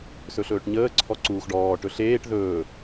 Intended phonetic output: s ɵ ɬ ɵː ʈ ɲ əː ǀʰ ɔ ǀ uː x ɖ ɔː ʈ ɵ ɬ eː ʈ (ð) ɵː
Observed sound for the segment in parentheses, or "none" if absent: ð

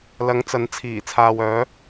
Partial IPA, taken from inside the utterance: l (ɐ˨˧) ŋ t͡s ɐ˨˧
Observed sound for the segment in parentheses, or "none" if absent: ɐ˨˧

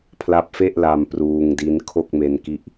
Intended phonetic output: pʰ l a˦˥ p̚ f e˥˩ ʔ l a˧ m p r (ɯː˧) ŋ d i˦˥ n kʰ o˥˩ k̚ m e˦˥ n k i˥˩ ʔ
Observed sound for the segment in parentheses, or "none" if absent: uː˧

